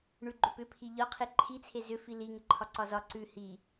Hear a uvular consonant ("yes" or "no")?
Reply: yes